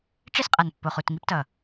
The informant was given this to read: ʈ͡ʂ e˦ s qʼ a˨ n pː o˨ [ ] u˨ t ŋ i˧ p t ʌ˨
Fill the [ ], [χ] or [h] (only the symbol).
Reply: χ